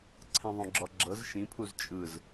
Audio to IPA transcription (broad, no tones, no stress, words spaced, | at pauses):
ǀʰɛ̃ðˤõɡ͡ǁɔɡ͡ǁɤz ʃĩpʰuz t͡ʃʼɯz